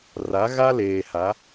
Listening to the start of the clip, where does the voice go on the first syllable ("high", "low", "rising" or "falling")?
rising